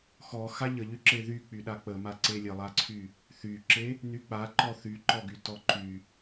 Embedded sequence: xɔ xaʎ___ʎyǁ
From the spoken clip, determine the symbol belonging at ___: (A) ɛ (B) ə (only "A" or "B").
B